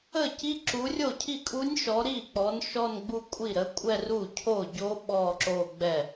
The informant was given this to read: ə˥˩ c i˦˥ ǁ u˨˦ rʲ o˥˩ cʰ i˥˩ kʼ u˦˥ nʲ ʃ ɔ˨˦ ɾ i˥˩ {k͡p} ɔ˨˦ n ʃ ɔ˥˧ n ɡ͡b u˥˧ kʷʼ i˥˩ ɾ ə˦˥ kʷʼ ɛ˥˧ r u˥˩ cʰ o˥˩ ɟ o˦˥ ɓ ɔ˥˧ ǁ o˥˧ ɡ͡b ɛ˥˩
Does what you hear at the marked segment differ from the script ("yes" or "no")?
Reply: no